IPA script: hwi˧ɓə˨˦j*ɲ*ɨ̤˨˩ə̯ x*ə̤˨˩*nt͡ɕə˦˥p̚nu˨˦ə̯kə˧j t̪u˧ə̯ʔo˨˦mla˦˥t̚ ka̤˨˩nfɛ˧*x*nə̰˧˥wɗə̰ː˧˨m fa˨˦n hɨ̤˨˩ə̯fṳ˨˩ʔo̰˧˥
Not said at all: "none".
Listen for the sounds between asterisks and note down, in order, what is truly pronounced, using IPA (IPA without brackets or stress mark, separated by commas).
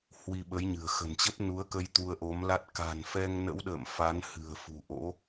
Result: ɲ, ə̤˨˩, ŋ